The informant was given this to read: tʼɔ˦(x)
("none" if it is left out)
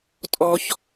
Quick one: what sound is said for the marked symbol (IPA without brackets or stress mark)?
ç